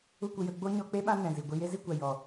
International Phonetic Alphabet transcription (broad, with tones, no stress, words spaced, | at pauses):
u˦kʷə˨˦jə˧ ɡ͡bo˦ɲɔ˧k͡pe˦ ɓã˦nɛ̃˨zi˨ɡʷi˧ je˦zi˦kʷa˨ jɔ˨